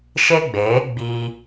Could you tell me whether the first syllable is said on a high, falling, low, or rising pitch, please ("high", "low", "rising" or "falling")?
high